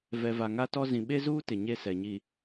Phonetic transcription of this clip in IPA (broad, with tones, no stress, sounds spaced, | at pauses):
v ɛ˨ v a˨ ŋ a˦ t ɔ˦ z ĩ˨ ɓ e˦ z uː˦ t ɪ˨ ɲ e˦ s ɛ˨ ɲ i˨